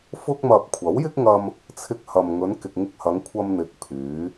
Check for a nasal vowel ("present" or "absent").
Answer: absent